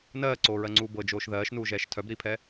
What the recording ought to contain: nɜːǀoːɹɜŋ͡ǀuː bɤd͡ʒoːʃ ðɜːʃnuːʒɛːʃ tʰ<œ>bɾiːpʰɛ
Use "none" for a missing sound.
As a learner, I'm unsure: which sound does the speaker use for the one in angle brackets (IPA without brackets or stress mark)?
œ